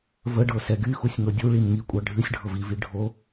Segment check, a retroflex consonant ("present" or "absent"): present